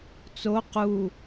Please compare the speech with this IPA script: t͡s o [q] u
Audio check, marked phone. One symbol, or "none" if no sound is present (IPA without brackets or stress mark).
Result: q